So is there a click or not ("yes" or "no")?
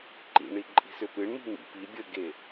yes